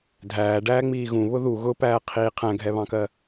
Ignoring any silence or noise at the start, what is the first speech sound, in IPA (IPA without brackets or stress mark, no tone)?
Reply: dʱ